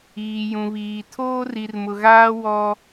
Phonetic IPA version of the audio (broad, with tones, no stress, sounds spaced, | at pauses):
iː˨ j ũ˨ β iː˨ tʰ oː˦ r i˨ r m ʊ˨ ɣ aː˦ w ɔ˦